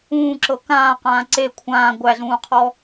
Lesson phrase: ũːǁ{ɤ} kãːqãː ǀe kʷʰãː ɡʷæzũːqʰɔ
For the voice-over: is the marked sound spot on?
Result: yes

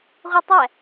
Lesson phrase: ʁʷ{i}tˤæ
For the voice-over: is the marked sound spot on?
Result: yes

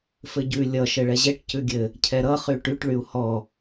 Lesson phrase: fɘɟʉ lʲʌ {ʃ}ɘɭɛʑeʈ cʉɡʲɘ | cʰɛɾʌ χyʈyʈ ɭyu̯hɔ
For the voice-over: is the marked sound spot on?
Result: yes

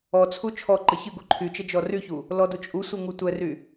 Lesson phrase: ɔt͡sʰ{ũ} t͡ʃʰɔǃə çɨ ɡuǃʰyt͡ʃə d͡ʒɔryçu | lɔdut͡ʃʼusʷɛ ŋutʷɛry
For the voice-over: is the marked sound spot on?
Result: no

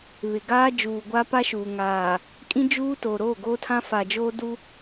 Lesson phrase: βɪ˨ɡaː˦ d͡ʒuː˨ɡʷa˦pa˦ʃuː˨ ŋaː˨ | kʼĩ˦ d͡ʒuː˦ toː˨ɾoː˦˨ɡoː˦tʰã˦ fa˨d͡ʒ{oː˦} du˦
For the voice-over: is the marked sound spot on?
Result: yes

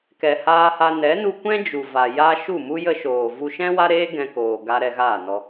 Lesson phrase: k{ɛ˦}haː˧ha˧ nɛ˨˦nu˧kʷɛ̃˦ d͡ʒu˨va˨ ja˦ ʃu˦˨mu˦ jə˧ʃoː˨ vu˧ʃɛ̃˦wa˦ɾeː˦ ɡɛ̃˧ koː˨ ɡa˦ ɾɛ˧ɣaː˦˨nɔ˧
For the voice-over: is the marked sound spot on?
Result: no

